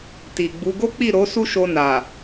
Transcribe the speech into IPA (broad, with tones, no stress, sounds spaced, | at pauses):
t i˨ ɡ͡b u˨˦ ɡ o˦ k͡p i˦˨ ɾ o˨˦ s u˦ ʃ o˧ n a˨